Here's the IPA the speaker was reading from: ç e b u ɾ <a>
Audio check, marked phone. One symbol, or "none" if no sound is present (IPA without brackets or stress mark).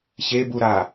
a